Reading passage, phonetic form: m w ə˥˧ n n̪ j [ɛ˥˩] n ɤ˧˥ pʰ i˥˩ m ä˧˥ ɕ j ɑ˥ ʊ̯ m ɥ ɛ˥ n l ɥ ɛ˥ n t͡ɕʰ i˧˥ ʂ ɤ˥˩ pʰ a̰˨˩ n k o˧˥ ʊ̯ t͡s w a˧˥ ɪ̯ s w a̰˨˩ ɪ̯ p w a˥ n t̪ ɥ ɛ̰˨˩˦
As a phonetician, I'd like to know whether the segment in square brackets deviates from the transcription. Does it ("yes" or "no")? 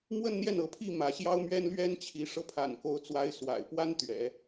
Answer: no